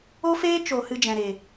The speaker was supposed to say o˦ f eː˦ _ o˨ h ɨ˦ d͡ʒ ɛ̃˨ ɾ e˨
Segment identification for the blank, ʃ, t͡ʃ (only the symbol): t͡ʃ